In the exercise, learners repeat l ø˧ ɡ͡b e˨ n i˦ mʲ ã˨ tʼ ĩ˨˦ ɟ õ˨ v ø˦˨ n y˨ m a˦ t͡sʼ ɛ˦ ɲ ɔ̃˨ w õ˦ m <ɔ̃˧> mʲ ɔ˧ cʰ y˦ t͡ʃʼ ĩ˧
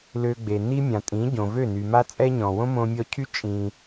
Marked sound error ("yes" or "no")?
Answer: yes